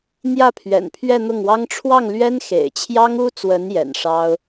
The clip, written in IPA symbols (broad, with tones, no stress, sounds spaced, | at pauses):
n̪ j ä˥˩ pʰ ɥ ɛ̰˨˩ n pʰ ɥ ɛ˥˧ n̪ ʊ˥˩ ŋ w ɑ˥ ŋ ʈ͡ʂʰ w ɑ˥˩ ŋ l ɥ ɛ˥ n x ḛ˨˩ ɪ̯ t͡ɕʰ j ɑ˥ ŋ u˥ t͡s w ə˧˥ n j ɛ̰˨˩ n ʂ ɑ˥ ʊ̯